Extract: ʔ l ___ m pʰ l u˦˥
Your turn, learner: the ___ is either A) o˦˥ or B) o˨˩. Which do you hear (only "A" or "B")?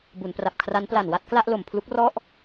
B